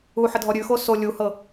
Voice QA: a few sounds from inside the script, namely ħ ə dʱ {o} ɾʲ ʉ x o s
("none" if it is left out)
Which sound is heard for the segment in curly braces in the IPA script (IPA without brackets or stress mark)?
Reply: ɔ